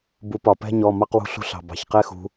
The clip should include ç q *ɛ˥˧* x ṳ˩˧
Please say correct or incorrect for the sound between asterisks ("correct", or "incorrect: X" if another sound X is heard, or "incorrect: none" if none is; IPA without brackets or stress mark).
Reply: correct